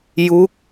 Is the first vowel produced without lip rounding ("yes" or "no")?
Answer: no